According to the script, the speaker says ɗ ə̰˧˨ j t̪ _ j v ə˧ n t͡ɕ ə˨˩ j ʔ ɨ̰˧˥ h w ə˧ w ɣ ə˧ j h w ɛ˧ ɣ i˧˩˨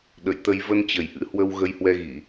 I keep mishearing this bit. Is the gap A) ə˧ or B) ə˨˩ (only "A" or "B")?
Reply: A